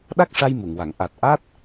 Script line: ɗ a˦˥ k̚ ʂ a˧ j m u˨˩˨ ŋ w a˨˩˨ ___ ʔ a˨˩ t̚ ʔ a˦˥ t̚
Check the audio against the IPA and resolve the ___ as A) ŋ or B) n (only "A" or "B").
A